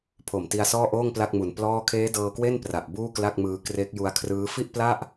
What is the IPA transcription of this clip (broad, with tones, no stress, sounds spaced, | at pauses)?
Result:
pʰ o˨˩ m t i˧ a̯ s ɔː˥˩ ʔ oː˥˩ ŋ p l a˥˩ k̚ m u˨˩ n p l ɔː˥˩ kʰ eː˦˥ d ɤː˧ k w e˥˩ n p r a˨˩ ʔ b uː˥˩ k l a˥˩ k̚ m ɯː˧ k r e˦˥ k̚ j u˧ a̯ kʰ r ɯː˦˥ f i˥˩ ʔ p l a˥˩ ʔ